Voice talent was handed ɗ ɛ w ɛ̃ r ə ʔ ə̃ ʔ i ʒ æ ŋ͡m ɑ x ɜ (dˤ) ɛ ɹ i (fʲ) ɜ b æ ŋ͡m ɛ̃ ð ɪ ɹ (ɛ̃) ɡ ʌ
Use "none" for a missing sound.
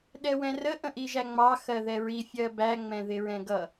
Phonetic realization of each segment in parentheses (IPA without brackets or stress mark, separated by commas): ð, fʲ, ɛ̃